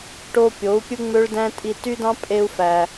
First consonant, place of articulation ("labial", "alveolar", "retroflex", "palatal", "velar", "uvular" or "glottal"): retroflex